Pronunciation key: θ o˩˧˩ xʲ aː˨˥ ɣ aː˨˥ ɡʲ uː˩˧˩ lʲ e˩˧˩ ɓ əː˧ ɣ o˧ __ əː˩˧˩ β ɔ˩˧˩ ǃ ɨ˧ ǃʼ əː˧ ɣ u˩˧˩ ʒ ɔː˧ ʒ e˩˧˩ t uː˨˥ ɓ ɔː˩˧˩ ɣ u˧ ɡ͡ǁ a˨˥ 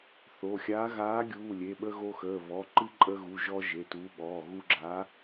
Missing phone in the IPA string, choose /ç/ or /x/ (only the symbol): x